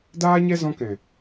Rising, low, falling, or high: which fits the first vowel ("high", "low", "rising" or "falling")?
high